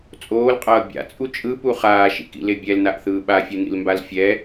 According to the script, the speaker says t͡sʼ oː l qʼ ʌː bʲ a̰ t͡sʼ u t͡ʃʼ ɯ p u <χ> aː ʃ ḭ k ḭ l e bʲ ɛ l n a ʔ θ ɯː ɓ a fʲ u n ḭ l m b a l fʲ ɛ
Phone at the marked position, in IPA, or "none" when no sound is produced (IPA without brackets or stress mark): χ